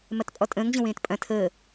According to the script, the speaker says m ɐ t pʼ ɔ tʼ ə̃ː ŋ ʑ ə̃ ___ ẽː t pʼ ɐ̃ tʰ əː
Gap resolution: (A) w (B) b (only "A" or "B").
A